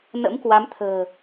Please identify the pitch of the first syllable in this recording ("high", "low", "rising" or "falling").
rising